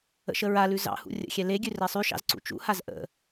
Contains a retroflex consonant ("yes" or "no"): no